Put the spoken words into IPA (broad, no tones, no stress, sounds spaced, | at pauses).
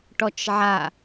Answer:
ʈ ɔ t͡ʃ ʕ a